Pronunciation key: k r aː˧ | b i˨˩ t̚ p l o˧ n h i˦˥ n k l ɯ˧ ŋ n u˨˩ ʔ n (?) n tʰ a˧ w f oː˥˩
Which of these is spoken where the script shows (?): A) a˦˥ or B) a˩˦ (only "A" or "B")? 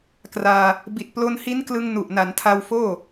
B